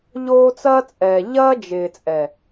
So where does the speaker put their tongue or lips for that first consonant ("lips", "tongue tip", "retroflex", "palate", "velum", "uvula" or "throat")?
palate